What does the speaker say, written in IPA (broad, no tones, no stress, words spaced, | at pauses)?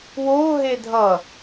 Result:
woɦe dʱʌ